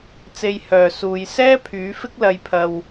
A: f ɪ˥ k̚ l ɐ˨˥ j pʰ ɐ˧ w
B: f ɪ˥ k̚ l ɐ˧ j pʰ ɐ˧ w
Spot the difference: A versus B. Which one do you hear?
B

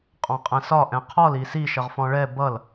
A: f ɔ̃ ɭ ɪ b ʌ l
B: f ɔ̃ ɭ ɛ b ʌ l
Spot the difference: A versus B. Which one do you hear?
B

